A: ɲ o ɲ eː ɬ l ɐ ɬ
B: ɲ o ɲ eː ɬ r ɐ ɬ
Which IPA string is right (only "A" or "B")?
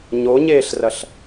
B